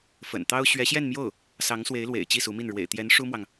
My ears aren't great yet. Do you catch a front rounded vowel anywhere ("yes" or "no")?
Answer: no